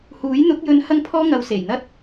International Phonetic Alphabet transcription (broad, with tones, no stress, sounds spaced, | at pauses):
h uː˨˥ j n̪ ʊ˨˥ k̚ j ɵ˧ n h ɐ˧ ŋ pʰ ɔː˧ ŋ ɐ˨˧ w s e˨˩ j n̪ ɐ˥ t̚